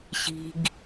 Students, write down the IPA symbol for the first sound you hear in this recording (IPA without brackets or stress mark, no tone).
ɕ